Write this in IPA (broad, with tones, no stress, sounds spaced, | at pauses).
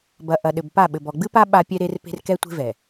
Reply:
b ɐ˨ ʔ ɐ˨ ɗ ɘ˨ b p a˦˨ ɓ ɘ˨ b ɔ˨ ɡ͡b ɨ˦ p a˦ ɓ a˦ pʲ ɛ˦ ɾ e˦ r p e̤˦ r k ɛ˦ tʷ e̤˦ v ɛ˨